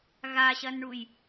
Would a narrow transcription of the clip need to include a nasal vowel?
no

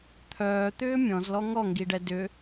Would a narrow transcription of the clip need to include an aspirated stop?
yes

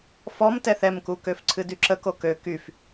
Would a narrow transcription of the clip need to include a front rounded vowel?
yes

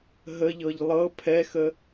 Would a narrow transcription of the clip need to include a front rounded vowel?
no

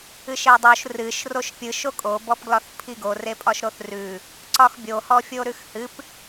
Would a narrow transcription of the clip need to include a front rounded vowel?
no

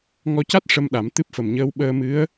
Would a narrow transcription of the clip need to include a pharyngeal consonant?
no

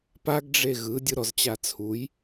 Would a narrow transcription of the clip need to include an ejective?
no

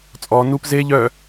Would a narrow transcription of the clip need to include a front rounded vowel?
yes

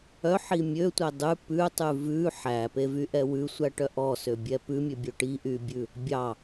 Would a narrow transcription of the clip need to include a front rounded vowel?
yes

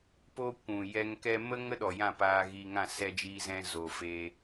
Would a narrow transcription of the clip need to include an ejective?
no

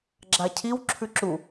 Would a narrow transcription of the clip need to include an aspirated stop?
yes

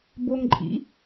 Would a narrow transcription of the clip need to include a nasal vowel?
no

